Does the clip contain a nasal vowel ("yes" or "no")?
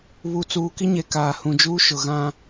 yes